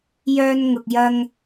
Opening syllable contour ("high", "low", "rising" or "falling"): high